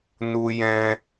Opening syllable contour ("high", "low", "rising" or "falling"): high